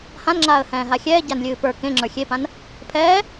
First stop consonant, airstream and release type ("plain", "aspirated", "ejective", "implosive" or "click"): click